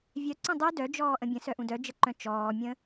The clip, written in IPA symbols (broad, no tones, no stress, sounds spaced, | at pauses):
vʲ œ ǀ œ̃ dˤ y d œ d͡ʒ ɔː ʔ ə̃ bʲ ə̃ s œ ʔ ũ d œ d͡ʒ ə ǃ œ̃ t͡ʃ ɔː mʲ ə̃